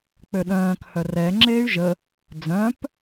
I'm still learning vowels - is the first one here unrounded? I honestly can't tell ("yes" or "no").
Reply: no